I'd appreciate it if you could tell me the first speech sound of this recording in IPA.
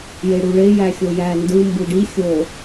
j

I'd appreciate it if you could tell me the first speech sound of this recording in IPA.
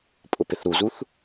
pʼ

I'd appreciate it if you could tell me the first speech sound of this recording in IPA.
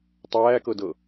tˤ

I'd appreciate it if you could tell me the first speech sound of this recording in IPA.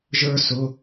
ʒ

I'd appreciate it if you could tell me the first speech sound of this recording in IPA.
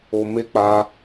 o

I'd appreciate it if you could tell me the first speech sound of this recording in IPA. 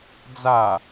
d͡z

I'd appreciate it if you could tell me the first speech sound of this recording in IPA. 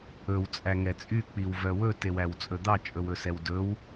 ɵ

